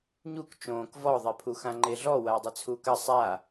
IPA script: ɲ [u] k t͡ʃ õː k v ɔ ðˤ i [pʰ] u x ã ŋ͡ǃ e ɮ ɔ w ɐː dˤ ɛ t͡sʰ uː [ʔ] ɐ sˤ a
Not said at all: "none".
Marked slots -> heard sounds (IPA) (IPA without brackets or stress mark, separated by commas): u, pʰ, k